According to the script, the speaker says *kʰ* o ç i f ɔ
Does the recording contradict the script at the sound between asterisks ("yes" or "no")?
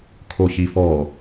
no